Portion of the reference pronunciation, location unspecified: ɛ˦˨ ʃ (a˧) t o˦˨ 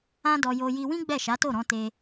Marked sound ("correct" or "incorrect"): incorrect